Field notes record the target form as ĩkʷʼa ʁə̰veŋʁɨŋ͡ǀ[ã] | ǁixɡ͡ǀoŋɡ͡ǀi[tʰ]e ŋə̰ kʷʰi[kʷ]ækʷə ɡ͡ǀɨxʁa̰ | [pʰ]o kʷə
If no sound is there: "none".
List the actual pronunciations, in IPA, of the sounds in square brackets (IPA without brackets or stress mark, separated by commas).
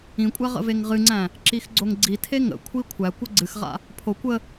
æ̃, tʰ, kʷʰ, pʰ